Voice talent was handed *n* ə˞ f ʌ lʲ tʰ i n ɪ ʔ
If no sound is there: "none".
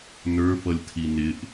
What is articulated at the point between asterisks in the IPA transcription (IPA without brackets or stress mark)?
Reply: n